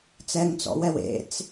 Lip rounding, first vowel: unrounded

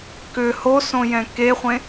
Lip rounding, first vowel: rounded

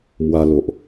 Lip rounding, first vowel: unrounded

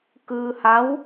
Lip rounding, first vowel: unrounded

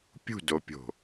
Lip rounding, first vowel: rounded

